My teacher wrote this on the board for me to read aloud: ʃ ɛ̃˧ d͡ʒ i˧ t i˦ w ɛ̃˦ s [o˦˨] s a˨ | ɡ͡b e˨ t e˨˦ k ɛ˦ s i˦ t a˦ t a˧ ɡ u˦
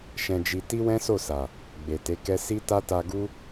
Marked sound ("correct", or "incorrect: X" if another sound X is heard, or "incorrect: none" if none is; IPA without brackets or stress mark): correct